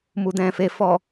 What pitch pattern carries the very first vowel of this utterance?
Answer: low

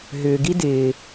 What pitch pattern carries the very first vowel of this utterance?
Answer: low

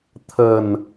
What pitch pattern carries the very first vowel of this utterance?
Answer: low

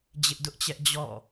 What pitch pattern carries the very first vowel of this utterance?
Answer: high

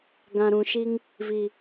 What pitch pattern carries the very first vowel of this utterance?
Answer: low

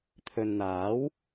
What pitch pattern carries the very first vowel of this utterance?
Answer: low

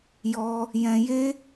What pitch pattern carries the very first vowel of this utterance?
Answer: high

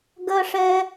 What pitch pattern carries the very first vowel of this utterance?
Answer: high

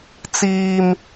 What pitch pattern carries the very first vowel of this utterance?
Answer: high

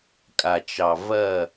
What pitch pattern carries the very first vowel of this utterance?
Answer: low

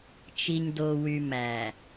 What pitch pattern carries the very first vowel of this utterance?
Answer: low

